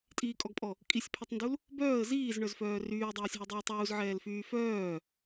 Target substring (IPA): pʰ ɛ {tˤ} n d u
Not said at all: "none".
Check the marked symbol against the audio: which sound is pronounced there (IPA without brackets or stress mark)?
tˤ